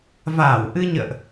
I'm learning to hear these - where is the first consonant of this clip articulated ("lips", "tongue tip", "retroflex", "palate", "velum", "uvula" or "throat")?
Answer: lips